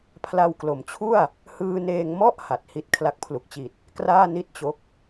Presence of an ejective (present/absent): absent